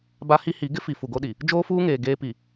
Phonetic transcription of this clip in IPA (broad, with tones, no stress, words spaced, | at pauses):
ba˦hi˦hi˨˦ ɡɪ˦fi˨ fu˨ɡo˦ɗi˨ | d͡ʒoː˦fuː˦ŋeː˨ ɡeː˦ pi˨